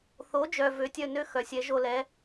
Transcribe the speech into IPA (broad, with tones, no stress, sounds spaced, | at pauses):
θ o˩˥ d͡ʒ œ˩ v ø˩˥ tʲ œ˥˩ n ø˥ x œ˩ sʲ ɛ˩˥ ʒ o˧ l ɛ˩˥